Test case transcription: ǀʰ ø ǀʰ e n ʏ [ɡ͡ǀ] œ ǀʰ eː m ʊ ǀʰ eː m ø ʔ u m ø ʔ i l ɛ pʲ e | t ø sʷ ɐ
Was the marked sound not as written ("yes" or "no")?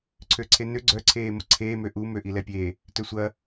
no